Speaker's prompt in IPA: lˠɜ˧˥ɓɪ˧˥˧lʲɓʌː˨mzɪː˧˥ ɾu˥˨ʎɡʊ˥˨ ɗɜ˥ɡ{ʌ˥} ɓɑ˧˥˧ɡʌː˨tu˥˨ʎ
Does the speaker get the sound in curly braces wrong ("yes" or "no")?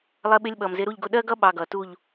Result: no